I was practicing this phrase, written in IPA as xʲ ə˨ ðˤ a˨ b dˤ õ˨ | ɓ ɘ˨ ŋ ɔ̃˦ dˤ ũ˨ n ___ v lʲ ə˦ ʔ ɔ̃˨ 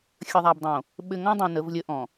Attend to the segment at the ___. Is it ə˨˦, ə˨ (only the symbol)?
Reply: ə˨˦